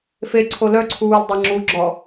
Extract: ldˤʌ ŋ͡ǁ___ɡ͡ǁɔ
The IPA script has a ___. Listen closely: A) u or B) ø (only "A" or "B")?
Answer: A